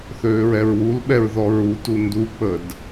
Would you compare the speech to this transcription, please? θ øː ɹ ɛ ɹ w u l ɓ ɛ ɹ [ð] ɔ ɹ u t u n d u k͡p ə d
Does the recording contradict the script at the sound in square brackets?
no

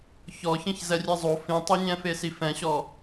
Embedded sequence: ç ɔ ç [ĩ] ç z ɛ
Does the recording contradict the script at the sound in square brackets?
no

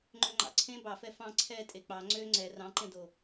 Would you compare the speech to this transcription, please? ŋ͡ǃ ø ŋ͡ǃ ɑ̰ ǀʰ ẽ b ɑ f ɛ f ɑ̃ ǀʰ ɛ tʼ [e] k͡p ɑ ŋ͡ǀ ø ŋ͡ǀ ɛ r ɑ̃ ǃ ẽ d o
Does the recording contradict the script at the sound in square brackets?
no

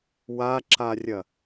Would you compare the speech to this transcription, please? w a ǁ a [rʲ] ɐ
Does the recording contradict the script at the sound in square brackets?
no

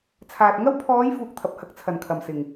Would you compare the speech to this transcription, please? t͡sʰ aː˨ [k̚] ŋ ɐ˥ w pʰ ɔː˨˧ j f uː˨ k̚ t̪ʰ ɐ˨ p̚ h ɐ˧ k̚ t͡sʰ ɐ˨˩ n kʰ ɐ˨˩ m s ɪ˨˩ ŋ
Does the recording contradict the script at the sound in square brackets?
yes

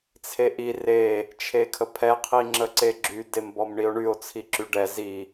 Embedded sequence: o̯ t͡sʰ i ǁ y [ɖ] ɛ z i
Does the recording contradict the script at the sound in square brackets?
no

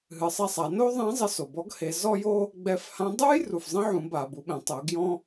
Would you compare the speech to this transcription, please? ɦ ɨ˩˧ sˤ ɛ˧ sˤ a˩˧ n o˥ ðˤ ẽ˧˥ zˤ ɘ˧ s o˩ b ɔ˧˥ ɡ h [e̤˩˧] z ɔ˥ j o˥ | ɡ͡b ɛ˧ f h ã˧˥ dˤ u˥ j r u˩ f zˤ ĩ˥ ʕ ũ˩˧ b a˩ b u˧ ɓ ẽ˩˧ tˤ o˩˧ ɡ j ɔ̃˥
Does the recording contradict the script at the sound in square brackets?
yes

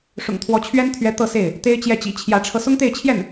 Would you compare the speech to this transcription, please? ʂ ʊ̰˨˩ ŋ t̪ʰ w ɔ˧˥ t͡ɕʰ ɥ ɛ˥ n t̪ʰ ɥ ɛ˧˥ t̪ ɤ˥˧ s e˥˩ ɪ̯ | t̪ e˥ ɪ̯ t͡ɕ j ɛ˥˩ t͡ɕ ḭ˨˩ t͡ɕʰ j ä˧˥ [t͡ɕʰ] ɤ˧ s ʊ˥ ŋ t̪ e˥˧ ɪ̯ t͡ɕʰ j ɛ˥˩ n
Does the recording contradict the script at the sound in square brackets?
yes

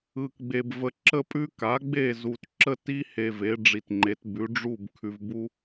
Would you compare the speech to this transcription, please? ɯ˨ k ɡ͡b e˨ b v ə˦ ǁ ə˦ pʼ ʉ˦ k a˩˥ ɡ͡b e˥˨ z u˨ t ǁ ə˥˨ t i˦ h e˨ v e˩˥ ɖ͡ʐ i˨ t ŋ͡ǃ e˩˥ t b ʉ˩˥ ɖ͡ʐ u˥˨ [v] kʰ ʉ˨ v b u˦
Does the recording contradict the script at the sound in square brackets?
yes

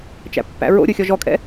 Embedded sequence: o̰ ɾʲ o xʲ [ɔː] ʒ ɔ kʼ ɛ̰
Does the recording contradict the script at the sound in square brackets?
yes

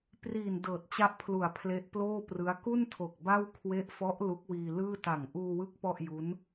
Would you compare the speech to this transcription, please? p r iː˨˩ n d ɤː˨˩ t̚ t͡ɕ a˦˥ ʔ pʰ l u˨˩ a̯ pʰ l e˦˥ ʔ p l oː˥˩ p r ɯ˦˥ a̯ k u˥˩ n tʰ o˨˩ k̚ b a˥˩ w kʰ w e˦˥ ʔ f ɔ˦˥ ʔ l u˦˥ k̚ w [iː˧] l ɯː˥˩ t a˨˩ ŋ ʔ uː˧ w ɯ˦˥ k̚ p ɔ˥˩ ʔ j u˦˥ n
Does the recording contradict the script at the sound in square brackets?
no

